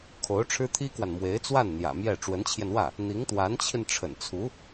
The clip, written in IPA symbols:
kʰo˧˥ʊ̯ʈ͡ʂʰɻ̩˥t̪ʰi˥kwa˨n mwe˧˥ɪ̯t͡swa˥˩n n̪jä̰˨˩mjɛ˥˩ ʈ͡ʂwə˧˥nt͡ɕʰjɛ˧n wä˥˩ | n̪i˧˥ŋt̪wa˧˥nt͡ɕʰi˧n ʈ͡ʂʰə̰˨˩nt͡sʰu˧˥

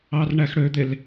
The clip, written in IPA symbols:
ɑrɳæxɽød̪el

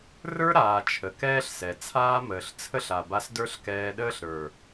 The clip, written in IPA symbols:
rə˞˦ɾaː˨ t͡ʃʰə˨kɛː˦ɬsɛ˨ t͡sʰaː˦məː˨ɬ t͡sʰə˦ɬa˨ba˧s də˞˦ɬkɛː˧ɗəː˦ɬɾə˞˨

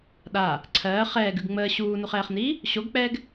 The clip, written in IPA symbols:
ɗa | ǀʰɜː χɛːɡʉɡ ŋ͡məː ɕuːnuχɛːχniː | ɕoɡk͡pɛːɡ

